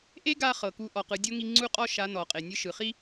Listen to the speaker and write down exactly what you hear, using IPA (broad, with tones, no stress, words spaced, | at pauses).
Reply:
ʔe˥ɡa˧ χɤ˩ku˧˥ ʔɔ˩qɯ˩˧ dʲo˥ŋi˧ŋ͡ǀu˥qʼɔ˥ ʃa˧˥nɔ˩qʼe˩ nʲɯ˧ʃɯ˩χi˥